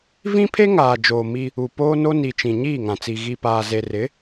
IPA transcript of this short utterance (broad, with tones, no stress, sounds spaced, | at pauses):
v ĩ˦ pʰ e˦ ŋ aː˨ d͡ʒ oː˨ m i˦ | u˨ p oː˦ n o˦ n i˨ t͡ʃ ĩ˨ ɲ iː˦˨ ŋ ã˨ t͡s i˨ ɣ i˨ p aː˨ z e˨ r ɪ˨˦